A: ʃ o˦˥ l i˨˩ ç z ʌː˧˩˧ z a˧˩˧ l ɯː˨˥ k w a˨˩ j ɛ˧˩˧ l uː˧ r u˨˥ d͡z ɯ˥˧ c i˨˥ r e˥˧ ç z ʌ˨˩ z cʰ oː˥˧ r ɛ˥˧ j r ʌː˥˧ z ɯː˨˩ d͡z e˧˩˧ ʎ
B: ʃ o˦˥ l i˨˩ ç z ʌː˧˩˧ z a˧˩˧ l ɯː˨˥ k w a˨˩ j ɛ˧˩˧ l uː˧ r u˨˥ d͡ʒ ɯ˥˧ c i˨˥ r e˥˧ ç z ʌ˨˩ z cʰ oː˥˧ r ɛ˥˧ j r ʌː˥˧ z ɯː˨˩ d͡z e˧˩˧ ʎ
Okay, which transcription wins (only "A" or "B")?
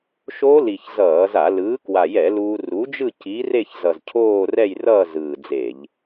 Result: B